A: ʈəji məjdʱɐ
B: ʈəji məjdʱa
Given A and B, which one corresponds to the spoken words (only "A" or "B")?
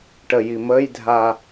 B